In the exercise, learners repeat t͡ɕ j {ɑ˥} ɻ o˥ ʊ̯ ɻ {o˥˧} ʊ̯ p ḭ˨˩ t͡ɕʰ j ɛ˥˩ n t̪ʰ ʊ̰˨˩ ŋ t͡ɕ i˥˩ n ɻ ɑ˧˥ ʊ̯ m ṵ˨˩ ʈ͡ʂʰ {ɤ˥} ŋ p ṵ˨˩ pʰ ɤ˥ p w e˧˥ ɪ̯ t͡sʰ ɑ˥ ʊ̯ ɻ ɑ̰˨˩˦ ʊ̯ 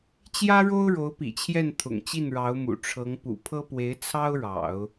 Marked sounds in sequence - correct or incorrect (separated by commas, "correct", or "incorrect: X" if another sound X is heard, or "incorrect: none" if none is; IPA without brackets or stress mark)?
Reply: incorrect: ä˥, incorrect: o˧˥, incorrect: ɤ˧˥